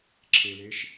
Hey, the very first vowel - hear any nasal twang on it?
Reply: no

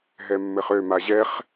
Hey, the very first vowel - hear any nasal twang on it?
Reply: no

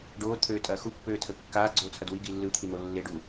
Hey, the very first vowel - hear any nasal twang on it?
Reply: no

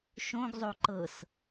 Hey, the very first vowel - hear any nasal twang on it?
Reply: yes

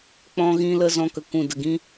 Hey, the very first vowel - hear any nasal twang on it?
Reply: yes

